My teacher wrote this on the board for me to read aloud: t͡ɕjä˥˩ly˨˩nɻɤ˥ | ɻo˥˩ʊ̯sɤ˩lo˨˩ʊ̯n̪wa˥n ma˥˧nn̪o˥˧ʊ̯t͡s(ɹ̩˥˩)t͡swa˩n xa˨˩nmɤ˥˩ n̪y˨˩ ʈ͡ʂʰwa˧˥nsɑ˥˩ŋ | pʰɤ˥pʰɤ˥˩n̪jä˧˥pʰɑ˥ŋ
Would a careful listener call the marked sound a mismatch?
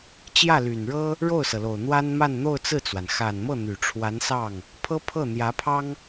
no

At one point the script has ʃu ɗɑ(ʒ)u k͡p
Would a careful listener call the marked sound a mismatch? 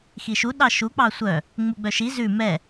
yes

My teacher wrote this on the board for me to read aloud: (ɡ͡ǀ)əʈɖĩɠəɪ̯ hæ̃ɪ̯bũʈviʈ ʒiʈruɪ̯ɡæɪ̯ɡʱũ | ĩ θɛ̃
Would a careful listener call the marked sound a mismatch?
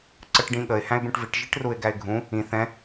yes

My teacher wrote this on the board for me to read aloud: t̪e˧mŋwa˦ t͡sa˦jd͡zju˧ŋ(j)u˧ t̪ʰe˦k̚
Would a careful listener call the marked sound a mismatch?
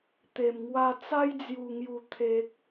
no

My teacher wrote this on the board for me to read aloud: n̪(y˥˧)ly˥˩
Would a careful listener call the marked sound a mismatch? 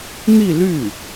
yes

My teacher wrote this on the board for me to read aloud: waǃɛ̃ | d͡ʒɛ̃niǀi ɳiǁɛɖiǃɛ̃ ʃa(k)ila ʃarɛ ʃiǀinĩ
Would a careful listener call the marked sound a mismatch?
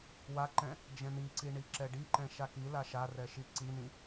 no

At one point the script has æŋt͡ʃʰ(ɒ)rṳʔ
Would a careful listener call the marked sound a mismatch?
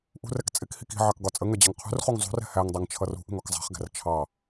yes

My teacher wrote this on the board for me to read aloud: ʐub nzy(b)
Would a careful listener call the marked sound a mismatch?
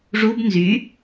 yes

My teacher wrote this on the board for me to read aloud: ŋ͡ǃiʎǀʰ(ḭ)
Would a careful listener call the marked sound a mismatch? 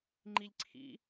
no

